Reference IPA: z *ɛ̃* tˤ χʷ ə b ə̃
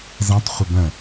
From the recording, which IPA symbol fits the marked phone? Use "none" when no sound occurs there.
ɛ̃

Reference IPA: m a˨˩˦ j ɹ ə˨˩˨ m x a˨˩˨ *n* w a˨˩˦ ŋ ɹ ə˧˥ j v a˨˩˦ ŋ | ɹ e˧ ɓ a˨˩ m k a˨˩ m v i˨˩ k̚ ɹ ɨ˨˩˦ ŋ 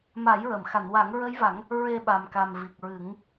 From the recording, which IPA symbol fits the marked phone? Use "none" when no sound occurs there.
n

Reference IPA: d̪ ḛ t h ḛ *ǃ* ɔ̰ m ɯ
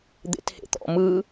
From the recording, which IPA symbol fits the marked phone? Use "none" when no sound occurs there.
t̪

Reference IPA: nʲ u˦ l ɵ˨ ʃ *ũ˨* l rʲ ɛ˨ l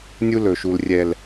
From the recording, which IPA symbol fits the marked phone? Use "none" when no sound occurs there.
u˨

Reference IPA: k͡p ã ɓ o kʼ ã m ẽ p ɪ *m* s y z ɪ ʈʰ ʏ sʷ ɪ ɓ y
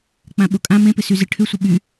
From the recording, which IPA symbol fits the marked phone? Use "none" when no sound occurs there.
none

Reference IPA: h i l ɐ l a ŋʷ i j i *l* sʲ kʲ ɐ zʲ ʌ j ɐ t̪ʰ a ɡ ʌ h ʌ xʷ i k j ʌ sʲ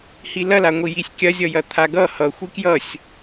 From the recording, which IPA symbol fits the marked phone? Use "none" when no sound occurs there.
none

